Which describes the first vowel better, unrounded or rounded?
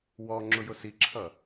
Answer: rounded